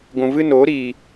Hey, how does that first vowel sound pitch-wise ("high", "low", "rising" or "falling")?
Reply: low